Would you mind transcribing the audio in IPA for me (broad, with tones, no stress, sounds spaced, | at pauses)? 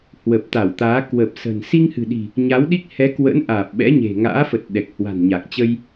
h w ə˨˩ p̚ t̪ a˧˩ w t̪ aː˨˦ k w ə˨˩ p̚ s ə̤˨˩ n s i˧ ŋ h ɨ̤˨˩ ɗ i̤˨˩ | ɲ a˨˦ w ɗ i˦˥ k̚ h ɛ˨˦ k w ə̰˧˥ n ʔ aː˨˩ p̚ ɓ ɛ̰˧˥ ɲ e̤˨˩ ŋ a̰ː˧˥ f ə˨˩ t̚ ɗ ɛ˨˩ k̚ h w a̤˨˩ n ɲ a˨˩ k̚ t͡ɕ ə˧ j